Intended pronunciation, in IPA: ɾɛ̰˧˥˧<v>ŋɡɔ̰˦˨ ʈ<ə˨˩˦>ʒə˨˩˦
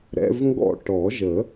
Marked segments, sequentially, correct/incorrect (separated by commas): correct, incorrect